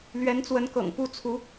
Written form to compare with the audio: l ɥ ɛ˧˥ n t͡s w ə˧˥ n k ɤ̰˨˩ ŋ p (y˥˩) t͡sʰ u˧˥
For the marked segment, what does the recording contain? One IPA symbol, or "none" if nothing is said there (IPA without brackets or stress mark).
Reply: u˥˩